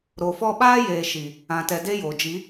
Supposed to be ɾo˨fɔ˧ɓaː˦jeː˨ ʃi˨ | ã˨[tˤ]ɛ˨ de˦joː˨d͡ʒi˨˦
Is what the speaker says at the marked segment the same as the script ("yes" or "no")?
no